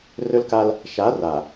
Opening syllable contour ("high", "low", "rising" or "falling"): high